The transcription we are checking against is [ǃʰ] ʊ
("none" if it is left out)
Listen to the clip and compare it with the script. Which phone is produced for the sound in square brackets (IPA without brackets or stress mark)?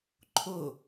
ǃʰ